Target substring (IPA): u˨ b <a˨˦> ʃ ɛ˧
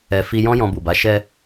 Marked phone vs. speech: correct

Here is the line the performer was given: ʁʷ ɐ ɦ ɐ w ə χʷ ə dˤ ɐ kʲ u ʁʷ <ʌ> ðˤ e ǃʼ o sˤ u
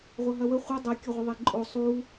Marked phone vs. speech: incorrect: ə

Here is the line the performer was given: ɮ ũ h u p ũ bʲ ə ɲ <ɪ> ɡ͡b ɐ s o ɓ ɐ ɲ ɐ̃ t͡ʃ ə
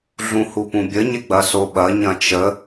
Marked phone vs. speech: correct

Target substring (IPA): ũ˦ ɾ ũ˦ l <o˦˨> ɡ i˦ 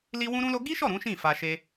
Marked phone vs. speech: incorrect: o˦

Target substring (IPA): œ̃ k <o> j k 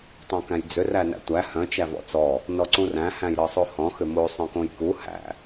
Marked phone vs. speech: incorrect: õ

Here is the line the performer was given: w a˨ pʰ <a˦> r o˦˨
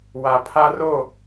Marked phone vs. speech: correct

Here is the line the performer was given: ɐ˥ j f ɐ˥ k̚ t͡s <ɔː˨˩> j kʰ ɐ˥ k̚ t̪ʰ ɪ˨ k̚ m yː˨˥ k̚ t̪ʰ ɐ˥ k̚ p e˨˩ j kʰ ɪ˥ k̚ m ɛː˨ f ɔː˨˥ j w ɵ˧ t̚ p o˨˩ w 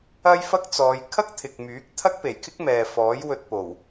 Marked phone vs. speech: incorrect: ɔː˨˧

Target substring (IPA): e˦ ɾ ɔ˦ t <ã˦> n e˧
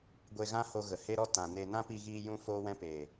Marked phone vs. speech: incorrect: ã˨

